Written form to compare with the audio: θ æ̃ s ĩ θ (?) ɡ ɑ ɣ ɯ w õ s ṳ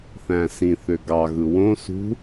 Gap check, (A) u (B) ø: B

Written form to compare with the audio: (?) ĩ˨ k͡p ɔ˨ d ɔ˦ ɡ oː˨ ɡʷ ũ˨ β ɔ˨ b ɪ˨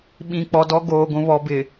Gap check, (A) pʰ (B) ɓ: B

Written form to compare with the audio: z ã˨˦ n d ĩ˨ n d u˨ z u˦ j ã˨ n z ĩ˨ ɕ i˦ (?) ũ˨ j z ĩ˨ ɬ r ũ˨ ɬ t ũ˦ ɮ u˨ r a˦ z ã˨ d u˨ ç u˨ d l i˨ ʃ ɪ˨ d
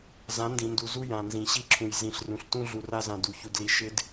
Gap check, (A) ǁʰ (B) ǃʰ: A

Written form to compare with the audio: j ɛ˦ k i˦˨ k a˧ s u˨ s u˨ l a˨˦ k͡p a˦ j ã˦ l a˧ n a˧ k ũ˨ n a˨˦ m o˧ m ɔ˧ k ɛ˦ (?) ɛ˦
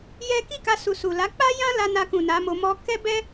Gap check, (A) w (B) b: B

